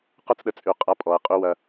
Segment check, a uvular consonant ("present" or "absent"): present